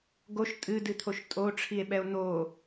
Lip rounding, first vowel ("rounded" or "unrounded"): rounded